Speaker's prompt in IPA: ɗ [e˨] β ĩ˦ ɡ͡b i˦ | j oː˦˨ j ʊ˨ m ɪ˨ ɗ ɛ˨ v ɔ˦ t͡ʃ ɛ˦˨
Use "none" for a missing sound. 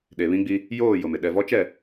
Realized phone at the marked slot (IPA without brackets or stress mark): e˨